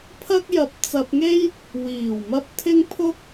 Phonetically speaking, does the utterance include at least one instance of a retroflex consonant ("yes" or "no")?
no